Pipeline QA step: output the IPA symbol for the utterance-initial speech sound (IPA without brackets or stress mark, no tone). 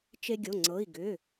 t͡ʃ